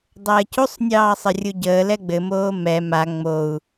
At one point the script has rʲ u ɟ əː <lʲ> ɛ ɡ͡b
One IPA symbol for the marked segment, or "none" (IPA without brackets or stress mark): l